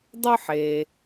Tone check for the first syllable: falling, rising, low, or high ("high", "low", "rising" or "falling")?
high